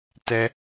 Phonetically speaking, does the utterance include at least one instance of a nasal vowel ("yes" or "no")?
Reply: no